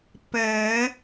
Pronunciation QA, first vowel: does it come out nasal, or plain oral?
oral